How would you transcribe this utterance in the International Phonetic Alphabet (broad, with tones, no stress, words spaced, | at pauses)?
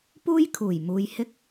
puː˥jkʰuː˨˩jmuː˨j hɪ˥k̚